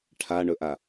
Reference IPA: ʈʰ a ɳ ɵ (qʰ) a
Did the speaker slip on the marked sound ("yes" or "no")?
yes